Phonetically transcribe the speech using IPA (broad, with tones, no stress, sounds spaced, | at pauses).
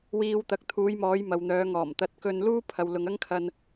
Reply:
w iː˧ w t̪ ɐ˨˥ k̚ t̪ʰ uː˨˧ j m ɔː˨˧ j m ɐ˨ w n̪ œː˨˧ ŋ ɔː˨˩ m t̪ ɐ˨˥ t̚ k ɵ˧ n l uː˥ pʰ ɐ˨ w l ʊ˨ ŋ ɐ˥ ŋ kʰ ɐ˧ n